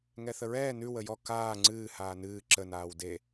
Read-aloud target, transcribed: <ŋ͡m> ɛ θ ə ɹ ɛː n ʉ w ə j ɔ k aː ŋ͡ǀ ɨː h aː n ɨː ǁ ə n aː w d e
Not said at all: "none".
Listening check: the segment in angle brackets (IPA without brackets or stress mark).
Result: ŋ